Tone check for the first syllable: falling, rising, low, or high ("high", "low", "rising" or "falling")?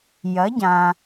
rising